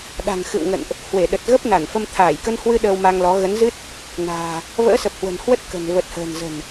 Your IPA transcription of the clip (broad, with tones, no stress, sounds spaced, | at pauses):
ɗ a̤˨˩ ŋ x ɨ̰˧˨ w ŋ ə̰˧˨ n ʔ | h w e˧˩ ɗ ə˨˩ t̚ ɣ ə˦˥ p̚ n a˧˩ n f ə˧ m t̪ʰ aː˧˩ j k ə˧ n h w ɨ˧ ɗ əː˧ w m a˧ ŋ l ɔ˨˦ ɣ ə˨˦ n z ɨ˦˥ t̚ | n a̤ː˨˩ | v ə̰ː˧˥ s ə˨˩ p̚ h w ə̤˨˩ n h w ə˦˥ t̚ k ə̤˨˩ n v ə˨˩ t̚ h ə̤ː˨˩ n z ə̤˨˩ n